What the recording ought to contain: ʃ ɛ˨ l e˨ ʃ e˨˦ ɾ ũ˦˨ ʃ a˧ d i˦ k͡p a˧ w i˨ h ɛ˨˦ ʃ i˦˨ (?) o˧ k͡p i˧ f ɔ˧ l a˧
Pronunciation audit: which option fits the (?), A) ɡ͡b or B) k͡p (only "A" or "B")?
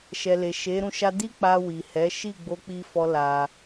A